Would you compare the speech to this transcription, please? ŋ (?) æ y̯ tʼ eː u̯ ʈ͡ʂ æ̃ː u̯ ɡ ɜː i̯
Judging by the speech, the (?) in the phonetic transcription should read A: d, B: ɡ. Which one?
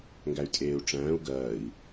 B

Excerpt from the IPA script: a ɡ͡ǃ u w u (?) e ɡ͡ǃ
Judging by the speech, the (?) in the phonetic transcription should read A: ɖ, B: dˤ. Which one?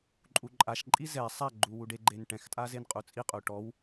A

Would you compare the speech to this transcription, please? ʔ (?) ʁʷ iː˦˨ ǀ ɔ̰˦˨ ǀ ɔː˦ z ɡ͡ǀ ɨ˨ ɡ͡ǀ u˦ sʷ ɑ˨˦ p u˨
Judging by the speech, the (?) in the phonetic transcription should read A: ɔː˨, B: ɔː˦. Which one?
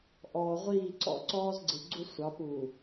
A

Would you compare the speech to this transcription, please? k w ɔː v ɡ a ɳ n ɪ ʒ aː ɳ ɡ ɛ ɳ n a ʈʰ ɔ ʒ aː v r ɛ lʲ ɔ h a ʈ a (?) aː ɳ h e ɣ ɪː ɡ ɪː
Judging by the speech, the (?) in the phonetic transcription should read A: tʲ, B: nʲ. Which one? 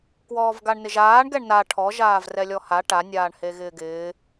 B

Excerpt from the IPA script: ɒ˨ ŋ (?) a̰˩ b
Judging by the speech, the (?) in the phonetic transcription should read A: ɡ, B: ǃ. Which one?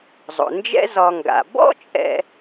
A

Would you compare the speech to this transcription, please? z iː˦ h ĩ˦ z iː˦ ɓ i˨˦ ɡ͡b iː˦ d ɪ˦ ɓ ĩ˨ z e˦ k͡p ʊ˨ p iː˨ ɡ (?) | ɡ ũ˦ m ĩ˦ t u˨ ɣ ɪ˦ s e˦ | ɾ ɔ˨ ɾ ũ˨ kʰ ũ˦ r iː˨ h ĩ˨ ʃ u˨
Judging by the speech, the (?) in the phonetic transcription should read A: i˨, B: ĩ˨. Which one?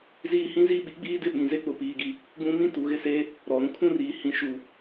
A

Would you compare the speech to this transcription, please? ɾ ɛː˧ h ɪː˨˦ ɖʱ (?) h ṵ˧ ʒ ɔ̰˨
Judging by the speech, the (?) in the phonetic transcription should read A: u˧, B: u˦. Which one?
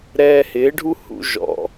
B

